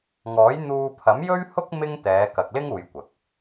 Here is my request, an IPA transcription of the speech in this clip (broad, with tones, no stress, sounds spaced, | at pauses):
ŋ ɔː˨˥ j n̪ uː˧ pʰ ɐ˨˥ m j ɵ˥ ɥ h ʊ˥ k̚ m ɪ˥ ŋ t̪ ɛː˨˧ k ɐ˨ k̚ l ɪ˥ ŋ uː˧ j kʷ ɐ˨˥ k̚